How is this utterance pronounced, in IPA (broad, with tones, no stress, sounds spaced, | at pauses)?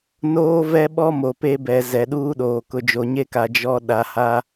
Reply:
n oː˦ v ɛ˦ ɓ ɔ˦ m o˨ p e˦ b ɛ˨ z ɛ˨ ɗ uː˦ ɗ oː˨ k ʊ˨ d͡ʒ o˨ ɲ e˦ k a˨ d͡ʒ ɔ˦ ɗ a˨ h a˦